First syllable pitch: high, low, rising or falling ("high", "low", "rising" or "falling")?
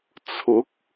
rising